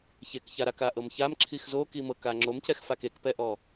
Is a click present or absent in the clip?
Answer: present